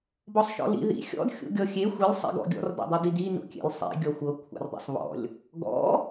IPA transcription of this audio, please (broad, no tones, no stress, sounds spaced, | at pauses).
b ɔ sˤ ʃ ɔ̰ l ḭ ð ḭ xʲ ɔ̰ d xʲ ṵ ɡʲ ɔ xʲ e xʷ i lʲ sˤ ḭ ɡ ɔ̰ ɡʲ ɔ̰ r d ɔ̰ dˤ i d i d i n ṵ kʲ ḛ lʲ sˤ ḭ ɡʲ ɔ xʷ ɤ kʷʰ a̰ r dˤ ḛ sˤ β ɔ̰ lʲ | ɡ ɔ̰